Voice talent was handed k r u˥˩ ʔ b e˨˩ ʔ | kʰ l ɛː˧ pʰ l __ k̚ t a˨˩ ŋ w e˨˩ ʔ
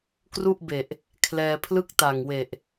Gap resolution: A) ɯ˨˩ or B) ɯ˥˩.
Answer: B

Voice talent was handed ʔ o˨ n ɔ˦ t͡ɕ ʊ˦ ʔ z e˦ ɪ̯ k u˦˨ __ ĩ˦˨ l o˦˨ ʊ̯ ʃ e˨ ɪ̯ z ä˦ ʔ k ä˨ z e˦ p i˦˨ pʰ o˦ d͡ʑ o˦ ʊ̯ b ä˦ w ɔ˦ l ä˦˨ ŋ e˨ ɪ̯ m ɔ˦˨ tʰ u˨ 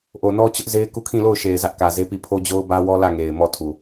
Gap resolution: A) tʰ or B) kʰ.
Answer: B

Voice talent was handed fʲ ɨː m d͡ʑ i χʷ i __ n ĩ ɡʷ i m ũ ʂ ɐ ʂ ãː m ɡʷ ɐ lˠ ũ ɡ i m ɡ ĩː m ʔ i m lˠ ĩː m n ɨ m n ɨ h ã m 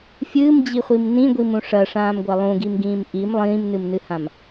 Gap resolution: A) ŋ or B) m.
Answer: B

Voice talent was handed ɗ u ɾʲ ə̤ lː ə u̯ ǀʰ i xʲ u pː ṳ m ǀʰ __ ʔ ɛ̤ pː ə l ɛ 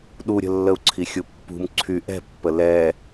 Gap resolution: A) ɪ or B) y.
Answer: B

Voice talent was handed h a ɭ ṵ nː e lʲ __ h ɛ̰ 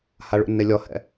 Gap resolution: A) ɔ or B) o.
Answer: A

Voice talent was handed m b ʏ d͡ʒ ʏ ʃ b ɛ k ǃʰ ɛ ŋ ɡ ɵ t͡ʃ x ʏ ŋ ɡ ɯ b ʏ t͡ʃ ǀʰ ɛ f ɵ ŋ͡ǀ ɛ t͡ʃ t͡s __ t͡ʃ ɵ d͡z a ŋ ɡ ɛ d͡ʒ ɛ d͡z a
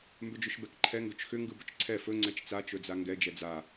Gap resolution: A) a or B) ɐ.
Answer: A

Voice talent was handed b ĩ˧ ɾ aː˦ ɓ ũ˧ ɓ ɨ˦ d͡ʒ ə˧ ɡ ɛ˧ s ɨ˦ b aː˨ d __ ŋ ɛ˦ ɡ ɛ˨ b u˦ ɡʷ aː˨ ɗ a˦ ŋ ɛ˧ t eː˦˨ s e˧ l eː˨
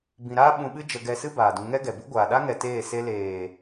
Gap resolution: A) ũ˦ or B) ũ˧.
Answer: B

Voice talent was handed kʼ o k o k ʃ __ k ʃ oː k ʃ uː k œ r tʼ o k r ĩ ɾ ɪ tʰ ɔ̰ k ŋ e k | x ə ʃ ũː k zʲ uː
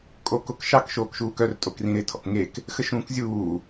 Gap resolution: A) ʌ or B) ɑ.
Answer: B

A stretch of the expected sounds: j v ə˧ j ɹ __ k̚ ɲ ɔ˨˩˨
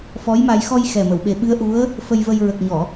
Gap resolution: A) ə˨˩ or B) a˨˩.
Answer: A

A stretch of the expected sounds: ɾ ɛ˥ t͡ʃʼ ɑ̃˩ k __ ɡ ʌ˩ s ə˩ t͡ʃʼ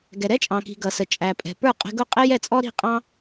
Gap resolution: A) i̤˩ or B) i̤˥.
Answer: A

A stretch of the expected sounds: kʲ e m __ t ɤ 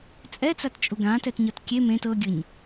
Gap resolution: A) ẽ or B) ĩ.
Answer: A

